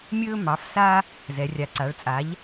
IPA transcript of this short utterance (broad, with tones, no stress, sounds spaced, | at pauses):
mʲ ɵː˥ m ɑ˩˥ f s a˥ | z ɛ˩˧ rʲ a˩˥ ǀ a˩˧ ɭ t͡sʼ a˩˥ ʎ